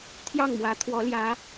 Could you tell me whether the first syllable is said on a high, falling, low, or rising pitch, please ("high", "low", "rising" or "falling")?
falling